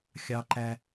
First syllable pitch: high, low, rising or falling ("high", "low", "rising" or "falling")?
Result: high